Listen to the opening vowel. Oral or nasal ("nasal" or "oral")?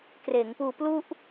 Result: oral